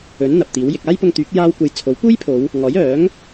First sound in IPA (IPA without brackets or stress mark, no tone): ɵ